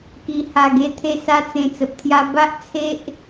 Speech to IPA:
k i˧ h a˧ ɡ e˦ t̪ʰ e˥˧ s a˦ t͡s ẽ˧ t͡s ə˨ p̚ t̪ʰ j a˧ b a˦ ʔ t͡sʰ e˦ ʔ

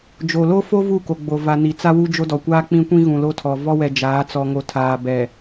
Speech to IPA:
d͡ʒ o˨ l o˦ f o˦ v u˦˨ k o˨ ɡ͡b o˨ v a˨ n i˨ t͡s a˦ w u˦ d͡ʒ o˦ d ɔ˨ kʷ aː˦ k͡p ĩ˦ kʷ ĩ˦ ɣ ũ˨ l o˦ tʰ ɔ˨ v ɔ˦ w ɛ˨ d͡ʒ aː˨˦ t͡s ɔ˨ ŋ o˨ tʰ aː˨ b ɛ˨

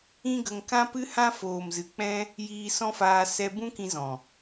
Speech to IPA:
ĩ˦ ɡ ə˧ ŋ k ã˦ p ɨ˦ h ã˦ f oː˨ m z ɨ˨ k͡p ɛ̃˦ | j iː˧ s ɔ̃˦ f aː˧ s ɛ˧ b ũ˦ k ĩ˧ z ɔ̃˨

